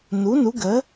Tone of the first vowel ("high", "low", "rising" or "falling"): rising